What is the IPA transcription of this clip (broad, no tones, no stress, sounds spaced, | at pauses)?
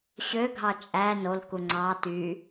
ɕ ø ɡʱ ɑ t͡ʃʼ æ n o l k u ŋ͡ǀ ɑ t y